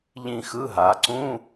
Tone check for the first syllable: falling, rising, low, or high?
falling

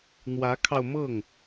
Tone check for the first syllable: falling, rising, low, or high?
rising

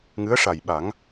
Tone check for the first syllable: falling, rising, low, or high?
rising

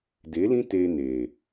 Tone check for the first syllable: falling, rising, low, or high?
rising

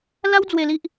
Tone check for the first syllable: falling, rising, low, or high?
high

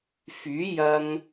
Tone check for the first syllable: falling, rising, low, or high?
rising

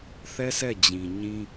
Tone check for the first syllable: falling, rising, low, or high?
high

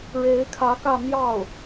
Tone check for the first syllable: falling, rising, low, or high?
rising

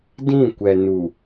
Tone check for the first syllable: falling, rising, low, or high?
falling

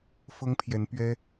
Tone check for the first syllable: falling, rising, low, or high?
high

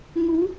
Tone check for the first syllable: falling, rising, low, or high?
rising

